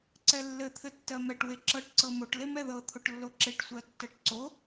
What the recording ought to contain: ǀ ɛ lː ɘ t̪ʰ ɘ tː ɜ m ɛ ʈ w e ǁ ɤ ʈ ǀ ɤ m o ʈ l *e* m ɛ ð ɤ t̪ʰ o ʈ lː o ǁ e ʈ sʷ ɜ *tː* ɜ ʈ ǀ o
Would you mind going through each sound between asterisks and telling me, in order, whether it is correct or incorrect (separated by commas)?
correct, correct